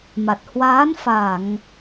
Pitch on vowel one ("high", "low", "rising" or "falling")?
low